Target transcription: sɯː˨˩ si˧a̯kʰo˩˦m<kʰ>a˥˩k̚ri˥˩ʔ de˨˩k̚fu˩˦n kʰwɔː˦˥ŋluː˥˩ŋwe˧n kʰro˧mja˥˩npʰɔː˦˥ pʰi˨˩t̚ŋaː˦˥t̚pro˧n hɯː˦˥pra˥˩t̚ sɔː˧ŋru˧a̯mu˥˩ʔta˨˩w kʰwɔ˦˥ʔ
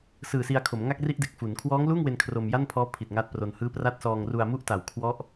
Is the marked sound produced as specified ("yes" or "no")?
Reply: no